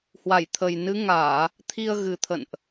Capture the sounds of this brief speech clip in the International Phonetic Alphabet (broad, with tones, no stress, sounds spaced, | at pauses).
h w a˧˩ j t̪ʰ ə˨˩ j n ɨ˨˦ ŋ aː˧˩˨ | t̪ʰ i˧ ə̯ ɣ ɨ˨˩ t̪ʰ ə̰˧˨ n ʔ